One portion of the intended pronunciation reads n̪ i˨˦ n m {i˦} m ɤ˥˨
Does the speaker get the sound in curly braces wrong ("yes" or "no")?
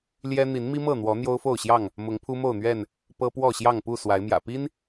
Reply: no